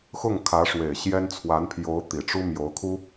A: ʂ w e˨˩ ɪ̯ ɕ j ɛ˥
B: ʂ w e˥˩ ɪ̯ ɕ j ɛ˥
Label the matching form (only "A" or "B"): A